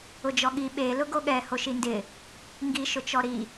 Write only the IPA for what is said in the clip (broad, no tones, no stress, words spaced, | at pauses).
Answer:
ʊd͡ʒɔɠi ɓe lʊɡoɠɛ hoʃindɪ | ŋɡi ʃʊt͡ʃɔɾi